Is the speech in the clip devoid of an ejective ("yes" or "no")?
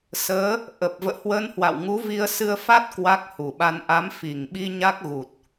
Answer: yes